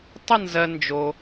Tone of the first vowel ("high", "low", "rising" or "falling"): falling